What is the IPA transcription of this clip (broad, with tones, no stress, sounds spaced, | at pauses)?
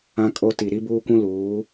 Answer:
ã˦ kʼ o˦ t i˨ ɾ i˦ b uː˦ kʷ ũ˦ l uː˨˦